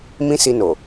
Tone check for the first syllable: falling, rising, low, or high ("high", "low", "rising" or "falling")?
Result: high